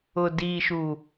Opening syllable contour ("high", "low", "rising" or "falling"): low